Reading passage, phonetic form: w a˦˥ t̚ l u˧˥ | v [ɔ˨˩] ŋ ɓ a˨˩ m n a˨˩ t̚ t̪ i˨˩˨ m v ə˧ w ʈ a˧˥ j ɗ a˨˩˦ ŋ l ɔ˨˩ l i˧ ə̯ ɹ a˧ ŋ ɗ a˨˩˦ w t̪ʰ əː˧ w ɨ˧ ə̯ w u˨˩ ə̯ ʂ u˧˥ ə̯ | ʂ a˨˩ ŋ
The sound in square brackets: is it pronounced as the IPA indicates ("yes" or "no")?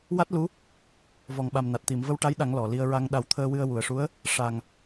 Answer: yes